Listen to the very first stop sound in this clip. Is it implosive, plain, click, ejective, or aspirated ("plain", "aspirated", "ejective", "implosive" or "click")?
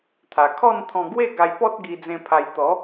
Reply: aspirated